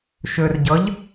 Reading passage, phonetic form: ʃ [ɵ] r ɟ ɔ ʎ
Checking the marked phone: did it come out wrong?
no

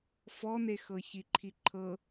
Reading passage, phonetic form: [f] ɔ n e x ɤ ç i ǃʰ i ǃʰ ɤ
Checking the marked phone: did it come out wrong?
no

